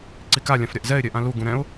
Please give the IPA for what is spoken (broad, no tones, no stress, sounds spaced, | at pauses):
ǀ i k a lʲ ã f ɾʲ a ʔ z ɛ ɪ̯ ɾʲ ɛ ʔ ã l u ɡ ũ ɾ ɛ̃ ʊ̯